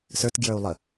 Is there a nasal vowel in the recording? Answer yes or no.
no